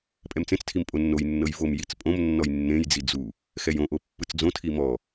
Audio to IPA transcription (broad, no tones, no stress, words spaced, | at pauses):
pʼɛmt͡sẽt͡stʰim pʼonːojnːɤj vom jit͡spʼõmnːɔj nːẽjd͡zi d͡zu | xɛjõʔo pːɯt͡sd͡zõtʰi mɔ